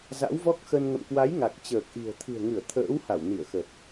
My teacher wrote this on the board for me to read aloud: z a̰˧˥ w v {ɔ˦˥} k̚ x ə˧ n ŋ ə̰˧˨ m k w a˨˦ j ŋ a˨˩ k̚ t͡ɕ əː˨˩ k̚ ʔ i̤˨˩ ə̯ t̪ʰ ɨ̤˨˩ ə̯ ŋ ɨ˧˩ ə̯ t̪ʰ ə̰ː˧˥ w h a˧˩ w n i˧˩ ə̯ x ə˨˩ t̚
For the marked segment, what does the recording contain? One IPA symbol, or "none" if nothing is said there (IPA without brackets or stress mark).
ɔ˦˥